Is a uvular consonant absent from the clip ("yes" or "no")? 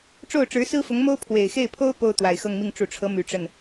yes